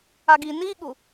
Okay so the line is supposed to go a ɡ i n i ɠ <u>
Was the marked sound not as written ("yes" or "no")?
no